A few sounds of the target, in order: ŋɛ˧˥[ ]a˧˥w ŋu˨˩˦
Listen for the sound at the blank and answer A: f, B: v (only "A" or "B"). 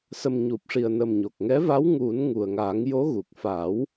B